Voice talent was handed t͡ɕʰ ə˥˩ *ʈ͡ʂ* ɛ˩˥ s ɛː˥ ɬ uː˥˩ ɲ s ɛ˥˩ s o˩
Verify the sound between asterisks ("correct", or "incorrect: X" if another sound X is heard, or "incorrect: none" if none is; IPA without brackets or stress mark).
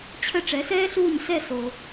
correct